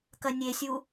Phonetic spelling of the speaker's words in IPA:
k ɐ nʲ e sʲ u

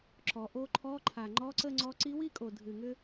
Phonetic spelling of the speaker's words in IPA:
ǁ ɔ˩˧ ʔ o˧˥ ǃʰ ɔ˧˥˧ ǃʰ a˨˩ ŋ͡ǃ ɔ˧˥˧ ǀ ə˥˧ ŋ͡ǀ ɔ˧˥ ǀ i˧˥ w i˥˧ kʼ o˨˩ dʱ ɨ˨˩ ŋ ʏ˥

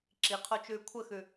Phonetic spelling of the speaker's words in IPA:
ǁ i qʰ o t͡ʃ ʉː kʷʰ ə x ʉ

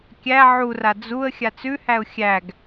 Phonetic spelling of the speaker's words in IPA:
kʲ æ ʕ u r a d͡z u ə̯ xʲ a t͡s ʉ h æ ʊ̯ xʲ æ ɡ

